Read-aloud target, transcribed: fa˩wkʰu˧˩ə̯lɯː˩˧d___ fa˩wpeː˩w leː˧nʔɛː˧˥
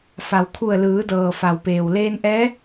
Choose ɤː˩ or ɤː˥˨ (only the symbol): ɤː˩